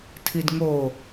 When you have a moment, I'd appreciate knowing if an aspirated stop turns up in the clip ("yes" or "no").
yes